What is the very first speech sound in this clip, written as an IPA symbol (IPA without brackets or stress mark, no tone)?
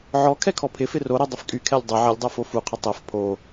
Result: ʕ